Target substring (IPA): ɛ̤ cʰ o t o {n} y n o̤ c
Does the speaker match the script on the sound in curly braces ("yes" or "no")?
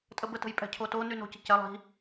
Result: yes